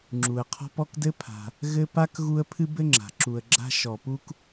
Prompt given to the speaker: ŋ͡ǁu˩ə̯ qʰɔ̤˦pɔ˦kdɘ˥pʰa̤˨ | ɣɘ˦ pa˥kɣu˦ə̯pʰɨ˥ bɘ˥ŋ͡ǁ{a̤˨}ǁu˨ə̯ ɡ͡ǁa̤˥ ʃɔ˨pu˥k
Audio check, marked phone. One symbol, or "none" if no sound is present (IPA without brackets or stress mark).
a̤˩